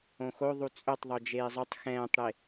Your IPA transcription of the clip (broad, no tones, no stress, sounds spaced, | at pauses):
õ x o ðˤ u t͡sʼ ɵ tˤ ðˤ o d͡ʒ eː zˤ ɵ tˤ x ɛ̃ː tˤ ɽ e